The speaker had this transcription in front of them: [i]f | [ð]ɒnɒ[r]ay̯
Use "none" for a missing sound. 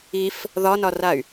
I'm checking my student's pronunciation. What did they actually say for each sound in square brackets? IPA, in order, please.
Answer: i, ð, r

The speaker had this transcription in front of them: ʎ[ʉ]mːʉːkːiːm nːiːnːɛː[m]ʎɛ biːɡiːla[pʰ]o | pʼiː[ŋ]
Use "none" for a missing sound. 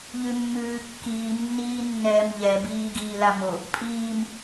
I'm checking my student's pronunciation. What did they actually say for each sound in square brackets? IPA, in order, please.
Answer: ʉ, m, m, m

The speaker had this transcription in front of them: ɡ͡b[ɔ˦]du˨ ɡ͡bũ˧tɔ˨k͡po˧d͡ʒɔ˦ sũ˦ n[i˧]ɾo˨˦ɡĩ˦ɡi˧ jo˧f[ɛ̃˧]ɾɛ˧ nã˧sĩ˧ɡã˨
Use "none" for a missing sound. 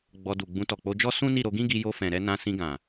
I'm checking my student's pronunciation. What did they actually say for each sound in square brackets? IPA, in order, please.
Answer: ɔ˧, i˦˨, ɛ̃˨

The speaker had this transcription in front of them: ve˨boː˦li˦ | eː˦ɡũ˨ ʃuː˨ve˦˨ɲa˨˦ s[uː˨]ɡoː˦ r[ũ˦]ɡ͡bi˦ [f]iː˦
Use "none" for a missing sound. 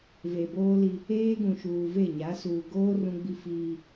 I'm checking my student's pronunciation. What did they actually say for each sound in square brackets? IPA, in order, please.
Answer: uː˨, ũ˦, f

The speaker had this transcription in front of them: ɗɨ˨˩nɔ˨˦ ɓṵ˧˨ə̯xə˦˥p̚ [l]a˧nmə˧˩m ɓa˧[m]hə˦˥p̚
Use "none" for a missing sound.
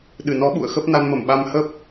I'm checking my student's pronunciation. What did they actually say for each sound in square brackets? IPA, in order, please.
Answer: n, m

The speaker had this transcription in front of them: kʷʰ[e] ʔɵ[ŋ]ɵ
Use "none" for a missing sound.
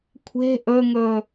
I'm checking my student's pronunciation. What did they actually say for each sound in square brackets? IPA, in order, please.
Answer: e̤, ŋ

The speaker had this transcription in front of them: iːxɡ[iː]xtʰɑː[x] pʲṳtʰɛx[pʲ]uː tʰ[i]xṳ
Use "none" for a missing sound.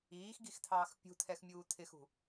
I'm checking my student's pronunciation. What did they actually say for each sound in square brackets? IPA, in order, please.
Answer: i, x, mʲ, ɪ

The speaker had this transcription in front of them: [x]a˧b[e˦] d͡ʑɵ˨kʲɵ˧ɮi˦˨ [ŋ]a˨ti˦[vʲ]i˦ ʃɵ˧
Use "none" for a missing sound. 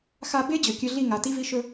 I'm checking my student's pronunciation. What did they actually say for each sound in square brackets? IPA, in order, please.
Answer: x, e˦, ŋ, v

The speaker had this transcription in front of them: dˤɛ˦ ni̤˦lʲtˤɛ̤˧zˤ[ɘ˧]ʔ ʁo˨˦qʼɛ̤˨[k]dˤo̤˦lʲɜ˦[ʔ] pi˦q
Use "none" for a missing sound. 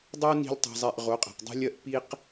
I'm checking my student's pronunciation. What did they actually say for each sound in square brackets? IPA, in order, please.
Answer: ɛ˧, q, ʔ

